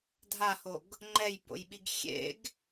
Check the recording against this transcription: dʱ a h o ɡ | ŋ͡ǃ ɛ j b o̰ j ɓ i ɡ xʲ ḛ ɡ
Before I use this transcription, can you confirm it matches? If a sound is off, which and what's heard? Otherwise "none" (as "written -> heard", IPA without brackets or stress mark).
none